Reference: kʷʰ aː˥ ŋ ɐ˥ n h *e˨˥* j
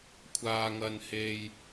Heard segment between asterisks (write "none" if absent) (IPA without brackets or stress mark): e˥